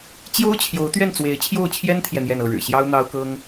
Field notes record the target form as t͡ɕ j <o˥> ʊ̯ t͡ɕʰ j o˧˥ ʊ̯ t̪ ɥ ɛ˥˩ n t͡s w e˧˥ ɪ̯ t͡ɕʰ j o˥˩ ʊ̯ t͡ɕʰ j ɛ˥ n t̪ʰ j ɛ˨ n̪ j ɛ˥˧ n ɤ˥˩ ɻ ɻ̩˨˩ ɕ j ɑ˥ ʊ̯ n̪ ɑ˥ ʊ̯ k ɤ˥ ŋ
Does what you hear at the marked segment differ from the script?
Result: no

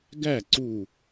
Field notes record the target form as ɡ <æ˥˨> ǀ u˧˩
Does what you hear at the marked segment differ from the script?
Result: no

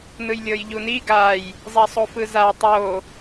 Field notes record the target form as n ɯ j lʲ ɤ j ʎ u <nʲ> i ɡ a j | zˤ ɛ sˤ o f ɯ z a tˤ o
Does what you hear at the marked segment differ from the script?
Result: yes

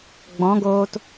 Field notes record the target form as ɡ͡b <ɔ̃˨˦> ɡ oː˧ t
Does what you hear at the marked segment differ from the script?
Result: no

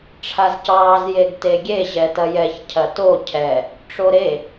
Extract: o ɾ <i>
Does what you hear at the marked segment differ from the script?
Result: yes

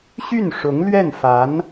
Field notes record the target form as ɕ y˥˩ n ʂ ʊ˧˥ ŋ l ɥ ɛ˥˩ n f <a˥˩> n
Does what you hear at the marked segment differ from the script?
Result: yes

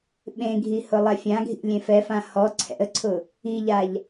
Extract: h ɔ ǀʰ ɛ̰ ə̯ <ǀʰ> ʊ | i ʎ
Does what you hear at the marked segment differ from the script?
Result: no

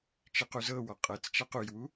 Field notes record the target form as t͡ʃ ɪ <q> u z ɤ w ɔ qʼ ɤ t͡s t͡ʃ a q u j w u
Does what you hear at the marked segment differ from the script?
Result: no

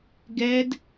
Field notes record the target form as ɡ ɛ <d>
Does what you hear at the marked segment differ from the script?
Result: no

